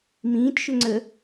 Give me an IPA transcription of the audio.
m ĩː t ʃ ʏ ŋ͡ǀ ə

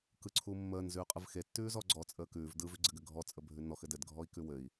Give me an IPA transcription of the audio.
k ɯ ǀʰ u mː əː n z ʉː qʼ ɯ v x e tː ʉː z ɔ ɡ͡ǀ ɔ t͡sʼ əː k ʉː v d ɯ v ʉ ɡ͡ǀ ɘ ɡ ɘ ɡʱ ɔ t͡sʼ ə bʱ ʉ n ɔ x ɘ d ɘ d ɡʱ ɔ i̯ k ʉ w ɘ i̯

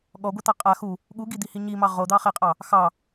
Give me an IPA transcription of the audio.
ɠ ɔ ɡʷ e t̪ ɑ qʼ a x u | ɠ u ɡ i d̪ i h i ɲ i m ɑ ʁ o d̪ ɑ χ e qʼ ɑ | x ɑ

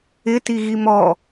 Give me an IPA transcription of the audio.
ɪ t i ɣ i m ɔ

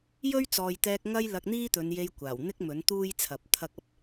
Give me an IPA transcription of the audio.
j ɵ˥ ɥ t͡s ɔː˨ j t̪ ɛː˧ k̚ ŋ ɐ˥ j l ɐ˧ k̚ n̪ iː˥ t̪ ɵ˨˧ n j e˧ j kʷ aː˨˩ w n̪ ɪ˥ k̚ m ɵ˨˥ n t̪ uː˥ j t͡sʰ ɐ˨˥ p̚ t̪ʰ ɐ˧ k̚ ɐ˧ p̚

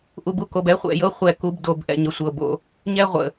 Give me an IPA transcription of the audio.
ʔ u˨ b u˦ k o˨ b ɛ˦ χʷ ɛ̰˨ j ɤ˦ χʷ ɛ˦˨ k u˦ b d o˨˦ b ʔ ɛ̰˨ ɲ ə˨ sʷ ɤ˨ b o̰˦ | ɲ ɛ˦ ʁʷ ə̰˨

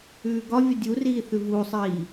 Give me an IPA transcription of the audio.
ʉː ɡ ɒ vʲ ʌ dʲ u r iː θ ʉ v uː sˤ iː

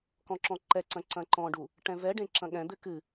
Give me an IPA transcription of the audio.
k ɔ̃ ǁ ɔ̃ ǃ ɛ ǀ ɐ̃ ǀ ɐ̃ ǃ ɔ̃ ɖ u | ʈ ɛ̃ v ɛ ɖ ẽ ǁ ɐ̃ ɠ ɛ̃ d̪ ɘ k ɨ

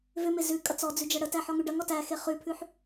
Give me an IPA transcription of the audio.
v ʏ m e z ʉ kʼ ɐ t͡s ɔ d͡z ʉ d͡ʒ ɐ ɽ ə t æ ħ ɔ ŋ ʉ ɖ ɐ ŋ ɔ t æ x e χ ʉ pʰ ʉ ħ

